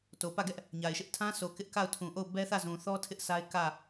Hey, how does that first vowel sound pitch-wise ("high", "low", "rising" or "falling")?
low